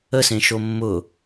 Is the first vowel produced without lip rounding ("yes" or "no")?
yes